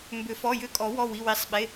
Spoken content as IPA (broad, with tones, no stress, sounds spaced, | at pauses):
m b ʏ˨˩˦ f ɔ˩˧˩ j ʏ˦˨ kʼ ɔ˨˩˦ w ɔ˩˧˩ w i˩˧˩ w i˨˩˦ sˤ ɓ e˩˧˩